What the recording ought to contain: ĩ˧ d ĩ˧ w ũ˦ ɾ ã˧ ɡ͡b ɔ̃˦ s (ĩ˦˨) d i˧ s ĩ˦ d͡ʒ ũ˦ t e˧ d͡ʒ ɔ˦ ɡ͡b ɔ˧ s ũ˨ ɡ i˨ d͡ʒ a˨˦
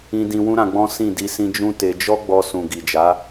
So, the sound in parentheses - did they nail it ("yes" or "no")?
yes